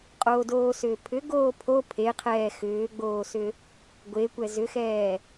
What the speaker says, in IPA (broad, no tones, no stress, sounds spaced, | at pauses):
qʼ oː d oː s ʏː pʰ ʏ ɡ oː pʰ o pʰ e qʰ ɛː x ʏː ɡ͡b oː s ʏ | ɡʷ e kʷ ɛ z ʏ x ɛː